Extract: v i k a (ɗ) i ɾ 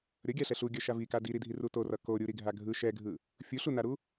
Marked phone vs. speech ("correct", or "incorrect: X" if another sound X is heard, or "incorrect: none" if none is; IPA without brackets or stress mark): incorrect: d